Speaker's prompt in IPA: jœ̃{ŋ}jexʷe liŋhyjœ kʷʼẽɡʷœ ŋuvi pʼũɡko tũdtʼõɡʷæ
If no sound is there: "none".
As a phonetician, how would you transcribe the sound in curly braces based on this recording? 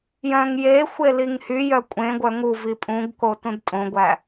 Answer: ŋ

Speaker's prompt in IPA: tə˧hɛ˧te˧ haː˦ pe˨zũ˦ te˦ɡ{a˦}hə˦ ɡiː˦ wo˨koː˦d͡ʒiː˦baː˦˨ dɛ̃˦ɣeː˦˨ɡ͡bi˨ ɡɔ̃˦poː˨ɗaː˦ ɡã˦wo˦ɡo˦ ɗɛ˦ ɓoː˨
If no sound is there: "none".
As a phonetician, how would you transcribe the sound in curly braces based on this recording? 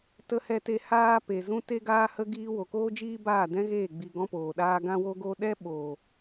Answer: aː˦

